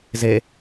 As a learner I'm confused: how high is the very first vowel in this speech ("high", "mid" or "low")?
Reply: mid